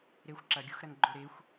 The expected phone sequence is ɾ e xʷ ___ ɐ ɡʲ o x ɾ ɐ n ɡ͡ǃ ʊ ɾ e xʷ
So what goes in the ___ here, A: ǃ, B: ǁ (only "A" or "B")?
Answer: B